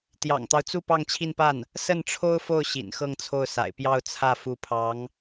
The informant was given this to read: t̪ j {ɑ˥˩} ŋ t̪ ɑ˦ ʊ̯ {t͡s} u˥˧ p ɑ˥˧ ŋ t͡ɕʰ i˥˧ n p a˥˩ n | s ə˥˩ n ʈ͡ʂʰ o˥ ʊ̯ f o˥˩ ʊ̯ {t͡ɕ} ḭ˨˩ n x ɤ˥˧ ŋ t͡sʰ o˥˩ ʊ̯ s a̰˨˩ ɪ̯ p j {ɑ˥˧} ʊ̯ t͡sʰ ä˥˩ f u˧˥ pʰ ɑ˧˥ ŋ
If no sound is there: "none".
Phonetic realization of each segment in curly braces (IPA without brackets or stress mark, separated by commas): ɑ̰˨˩, t͡s, ɕ, ɑ˥˧